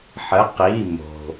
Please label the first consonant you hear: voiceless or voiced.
voiceless